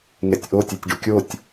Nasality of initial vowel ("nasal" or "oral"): oral